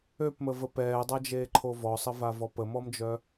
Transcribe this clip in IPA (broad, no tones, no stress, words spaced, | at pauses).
øpməvə pɛːdˤad͡ʒeːǃʰo vɔsˤəvavɔ pəmɔmd͡ʒœ